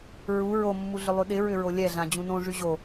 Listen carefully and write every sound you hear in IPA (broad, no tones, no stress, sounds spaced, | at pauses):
ɹ u ɹ o mː u ɮ ʏ lˠ y ɗ ɪ ɹ ʏ ɹ o lʲ ɛ ɮ ã d͡ʑ ũ n õ ʐ y ʑ o